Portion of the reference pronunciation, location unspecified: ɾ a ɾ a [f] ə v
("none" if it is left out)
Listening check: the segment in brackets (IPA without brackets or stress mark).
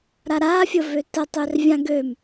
fʲ